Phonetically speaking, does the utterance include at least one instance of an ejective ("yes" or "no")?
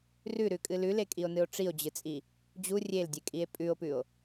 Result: yes